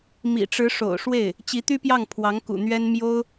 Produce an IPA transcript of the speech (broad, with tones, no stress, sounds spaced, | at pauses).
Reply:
m ḭ˨˩ ʈ͡ʂ ɻ̩˧˥ ʂ o̰˨˩ ʊ̯ ʂ w e˥˩ ɪ̯ | t͡ɕ i˧˥ t̪ y˥ p j ɑ˥˩ ŋ pʰ w ɑ˧˥ ŋ k ṵ˨˩ n̪ ɥ ɛ˥ n m j o˥ ʊ̯